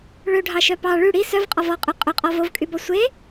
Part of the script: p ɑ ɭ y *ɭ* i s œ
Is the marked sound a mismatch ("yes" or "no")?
yes